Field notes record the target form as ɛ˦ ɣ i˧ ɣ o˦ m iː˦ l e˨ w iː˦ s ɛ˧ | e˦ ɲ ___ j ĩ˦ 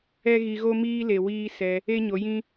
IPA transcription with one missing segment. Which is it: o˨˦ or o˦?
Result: o˨˦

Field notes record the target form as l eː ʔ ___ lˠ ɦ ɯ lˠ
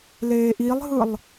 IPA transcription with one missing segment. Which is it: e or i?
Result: i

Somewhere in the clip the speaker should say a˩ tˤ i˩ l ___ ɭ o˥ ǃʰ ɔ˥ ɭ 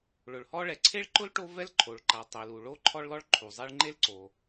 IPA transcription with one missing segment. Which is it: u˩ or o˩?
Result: u˩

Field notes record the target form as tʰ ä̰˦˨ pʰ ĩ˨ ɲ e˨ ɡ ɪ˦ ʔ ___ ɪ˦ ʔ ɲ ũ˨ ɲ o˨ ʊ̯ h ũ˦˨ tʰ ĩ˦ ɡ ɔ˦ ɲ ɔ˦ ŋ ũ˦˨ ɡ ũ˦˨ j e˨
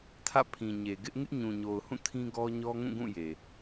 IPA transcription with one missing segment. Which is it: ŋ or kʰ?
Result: ŋ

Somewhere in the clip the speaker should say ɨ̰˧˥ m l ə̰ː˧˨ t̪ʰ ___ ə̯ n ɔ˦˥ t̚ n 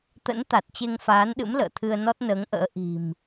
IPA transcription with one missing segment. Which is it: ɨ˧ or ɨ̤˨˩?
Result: ɨ˧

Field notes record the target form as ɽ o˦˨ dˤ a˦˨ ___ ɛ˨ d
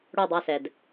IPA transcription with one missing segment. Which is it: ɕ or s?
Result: s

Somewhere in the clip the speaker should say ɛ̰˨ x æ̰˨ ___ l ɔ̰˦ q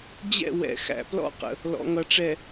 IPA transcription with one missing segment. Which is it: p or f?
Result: p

